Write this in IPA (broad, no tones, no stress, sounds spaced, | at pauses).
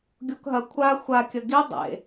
ɡʲ o k ɦ ɐ kʷʰ a xʷ a kʲ ɐ ɡ i dˤ ḛ